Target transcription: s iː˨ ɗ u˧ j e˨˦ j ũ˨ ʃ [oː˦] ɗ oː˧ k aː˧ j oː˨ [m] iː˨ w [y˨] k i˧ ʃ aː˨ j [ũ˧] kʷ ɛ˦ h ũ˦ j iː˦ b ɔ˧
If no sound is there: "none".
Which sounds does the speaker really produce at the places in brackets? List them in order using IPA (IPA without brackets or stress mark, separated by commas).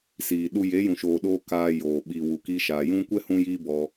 oː˨, ɓ, u˨, ũ˧